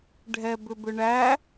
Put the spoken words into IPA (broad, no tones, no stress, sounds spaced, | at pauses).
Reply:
ɖʱ ɛ b ʏ b ʏ ɳ æ